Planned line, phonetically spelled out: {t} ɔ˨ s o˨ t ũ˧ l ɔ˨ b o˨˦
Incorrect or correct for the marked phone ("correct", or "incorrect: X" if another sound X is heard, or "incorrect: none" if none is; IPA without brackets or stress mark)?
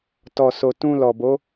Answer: correct